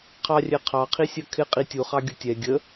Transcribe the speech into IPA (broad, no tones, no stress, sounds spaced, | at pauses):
qʰ ɑ rʲ ɛ qʰ ɑ qʰ i sʲ ɜ kʰ ɪ qʼ i tʲ u χ ɑ ɡʲ ʊ tʲ ɛ ɡʲ ə